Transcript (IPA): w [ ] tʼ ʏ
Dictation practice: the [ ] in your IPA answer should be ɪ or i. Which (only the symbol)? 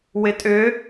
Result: ɪ